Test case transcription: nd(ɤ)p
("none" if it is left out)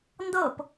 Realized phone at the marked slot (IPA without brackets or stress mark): ɤ